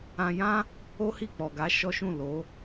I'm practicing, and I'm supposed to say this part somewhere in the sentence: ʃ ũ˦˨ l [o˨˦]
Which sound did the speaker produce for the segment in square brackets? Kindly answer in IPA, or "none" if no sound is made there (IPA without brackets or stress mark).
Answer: o˨˦